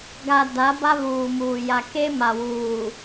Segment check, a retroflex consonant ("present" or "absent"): absent